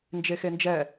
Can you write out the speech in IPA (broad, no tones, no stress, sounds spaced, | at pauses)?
n d͡ʒ e x e n d͡ʒ ɛ